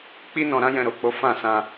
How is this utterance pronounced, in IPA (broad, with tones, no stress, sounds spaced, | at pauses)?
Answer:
k͡p i˦ n ɔ̃˧ ɾ ã˦ j ɛ̃˧ ɾ o˨ k͡p o˨˦ f ã˦˨ s ã˧